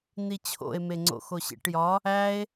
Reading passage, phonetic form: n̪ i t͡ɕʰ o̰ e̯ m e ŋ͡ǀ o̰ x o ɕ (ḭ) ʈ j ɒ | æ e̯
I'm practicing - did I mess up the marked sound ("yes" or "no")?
yes